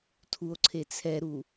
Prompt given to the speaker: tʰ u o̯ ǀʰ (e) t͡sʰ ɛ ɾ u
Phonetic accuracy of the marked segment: correct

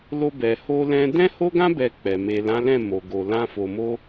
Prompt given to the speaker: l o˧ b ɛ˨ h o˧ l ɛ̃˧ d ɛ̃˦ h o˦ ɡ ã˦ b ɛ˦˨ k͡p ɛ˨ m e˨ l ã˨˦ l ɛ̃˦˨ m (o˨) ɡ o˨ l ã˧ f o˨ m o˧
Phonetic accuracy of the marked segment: correct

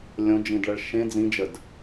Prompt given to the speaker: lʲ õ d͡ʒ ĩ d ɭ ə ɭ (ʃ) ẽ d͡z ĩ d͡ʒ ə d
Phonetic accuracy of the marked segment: correct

